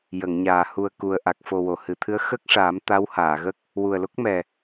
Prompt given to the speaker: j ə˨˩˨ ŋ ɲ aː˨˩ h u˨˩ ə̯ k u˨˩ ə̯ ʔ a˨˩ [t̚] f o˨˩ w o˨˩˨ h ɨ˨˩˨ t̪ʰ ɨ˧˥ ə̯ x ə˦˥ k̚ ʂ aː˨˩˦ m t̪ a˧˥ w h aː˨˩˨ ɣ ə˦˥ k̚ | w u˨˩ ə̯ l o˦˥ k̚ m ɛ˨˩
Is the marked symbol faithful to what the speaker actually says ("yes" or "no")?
no